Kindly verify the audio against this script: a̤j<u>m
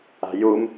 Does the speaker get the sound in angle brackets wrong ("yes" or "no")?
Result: no